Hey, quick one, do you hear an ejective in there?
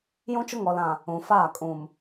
yes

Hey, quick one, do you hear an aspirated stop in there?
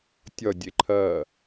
yes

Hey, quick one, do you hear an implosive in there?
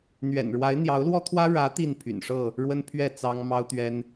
no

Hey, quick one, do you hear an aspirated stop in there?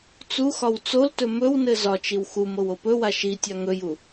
no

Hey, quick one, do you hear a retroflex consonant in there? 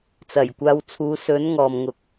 no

